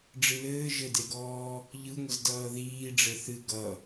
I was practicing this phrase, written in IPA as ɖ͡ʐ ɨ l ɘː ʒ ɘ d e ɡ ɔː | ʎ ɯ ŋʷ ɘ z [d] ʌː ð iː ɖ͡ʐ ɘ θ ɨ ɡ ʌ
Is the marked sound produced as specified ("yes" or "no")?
yes